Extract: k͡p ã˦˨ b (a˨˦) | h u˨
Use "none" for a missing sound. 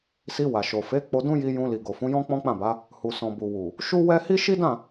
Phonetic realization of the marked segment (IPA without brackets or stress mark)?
a˨˦